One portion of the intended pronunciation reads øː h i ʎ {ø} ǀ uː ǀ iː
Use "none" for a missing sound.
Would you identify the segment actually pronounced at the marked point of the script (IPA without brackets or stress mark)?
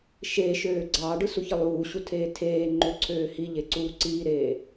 e